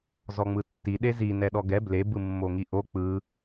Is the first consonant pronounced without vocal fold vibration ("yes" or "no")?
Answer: no